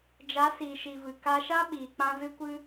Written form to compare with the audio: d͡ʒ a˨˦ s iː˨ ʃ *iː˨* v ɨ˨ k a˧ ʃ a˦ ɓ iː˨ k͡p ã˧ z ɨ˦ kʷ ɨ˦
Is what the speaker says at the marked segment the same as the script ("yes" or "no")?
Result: no